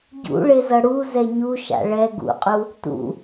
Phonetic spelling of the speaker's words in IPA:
ɟ ṵ ɭ e z ʌ ɽ u z ɛ ɲ u ʃ a̰ ɭ ɛ ɡ ṵ qʼ u | t ṵ

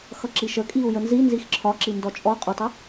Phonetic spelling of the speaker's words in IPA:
x ʌ ǁ i ʃ ə kʼ i u̯ j ə n z i n z i x ǁʰ ɒ ǁ i n d ɔ t͡ʃʼ ɔ qʼ ʊ tˤ ə

